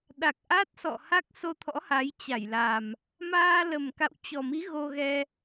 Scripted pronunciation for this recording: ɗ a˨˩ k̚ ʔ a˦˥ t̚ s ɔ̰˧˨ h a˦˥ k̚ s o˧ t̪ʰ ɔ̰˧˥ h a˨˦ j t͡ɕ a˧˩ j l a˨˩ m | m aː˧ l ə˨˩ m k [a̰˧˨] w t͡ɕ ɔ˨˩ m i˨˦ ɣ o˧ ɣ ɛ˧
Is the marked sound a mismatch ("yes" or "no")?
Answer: no